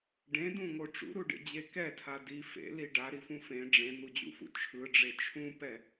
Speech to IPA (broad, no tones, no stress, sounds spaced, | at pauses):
ɖ ẽ d ũ ŋ o ʈ͡ʂ ṵ ɾ u ɖ ḛ d͡ʑ e k ɛ tʰ a d i f ḛ l i ɖ a ɾ i f ũ f ẽ ɖ͡ʐ ẽ n̪ u d͡ʑ ṵ f ṵ t͡ʃʰ ɯ ɖ͡ʐ e t͡ʃʰ ũ p ɛ